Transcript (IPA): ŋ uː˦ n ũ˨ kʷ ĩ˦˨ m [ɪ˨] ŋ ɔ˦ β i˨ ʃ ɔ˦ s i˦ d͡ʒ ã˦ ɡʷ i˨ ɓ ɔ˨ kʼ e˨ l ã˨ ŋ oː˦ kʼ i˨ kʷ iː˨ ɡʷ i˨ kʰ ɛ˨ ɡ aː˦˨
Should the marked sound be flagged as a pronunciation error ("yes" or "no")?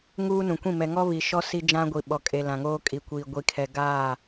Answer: yes